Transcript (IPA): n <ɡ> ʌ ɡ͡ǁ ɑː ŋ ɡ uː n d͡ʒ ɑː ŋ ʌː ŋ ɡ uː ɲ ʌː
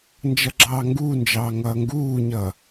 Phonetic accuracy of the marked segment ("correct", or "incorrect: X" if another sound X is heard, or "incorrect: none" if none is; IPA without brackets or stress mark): incorrect: d͡ʒ